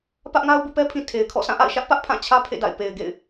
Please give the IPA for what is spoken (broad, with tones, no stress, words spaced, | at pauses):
pä˦ʔŋa˦ʊ̯ bṵ˦˨pɛ˦pʰĩ˨ tʰe˨ɪ̯kʰɔ̰˦˨ sʰã˦˨ʔa̰˦˨ɪ̯ʃä˦ʔ pä˦ʔpʰã˦˨t͡ɕʰä˦ pʰḛ˦˨da̰˦˨ɪ̯ pe˨ɪ̯ɡḛ˦˨ɪ̯